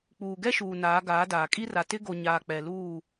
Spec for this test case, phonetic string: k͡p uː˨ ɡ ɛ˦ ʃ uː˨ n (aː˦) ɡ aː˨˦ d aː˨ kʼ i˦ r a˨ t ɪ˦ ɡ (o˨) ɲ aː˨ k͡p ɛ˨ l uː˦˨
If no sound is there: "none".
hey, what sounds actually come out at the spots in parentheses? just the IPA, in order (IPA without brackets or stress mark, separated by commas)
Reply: aː˨˦, o˨